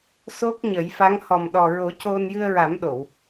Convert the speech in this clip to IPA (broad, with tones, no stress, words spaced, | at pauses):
so˦˥k̚ɲə˨˩˦jfa˧˥ŋ hɔ˨˩mɗɔ˨˩ɹo˨˩˦ co˧n jɨ˧ə̯ɹa˨˩˦mɗo˨˩˨w